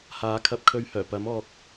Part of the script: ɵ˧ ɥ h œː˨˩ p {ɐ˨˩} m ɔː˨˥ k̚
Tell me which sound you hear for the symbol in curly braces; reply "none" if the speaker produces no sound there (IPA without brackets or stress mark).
ɐ˨˥